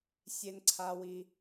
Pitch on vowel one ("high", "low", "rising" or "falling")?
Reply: high